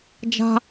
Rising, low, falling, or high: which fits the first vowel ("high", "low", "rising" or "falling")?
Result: high